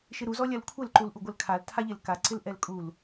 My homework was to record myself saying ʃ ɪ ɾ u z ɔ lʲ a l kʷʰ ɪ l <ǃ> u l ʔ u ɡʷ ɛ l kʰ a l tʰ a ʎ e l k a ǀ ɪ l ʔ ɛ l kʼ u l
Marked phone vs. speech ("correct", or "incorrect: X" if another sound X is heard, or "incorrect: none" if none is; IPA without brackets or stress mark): correct